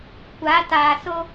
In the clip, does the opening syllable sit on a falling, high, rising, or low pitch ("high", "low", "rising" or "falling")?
rising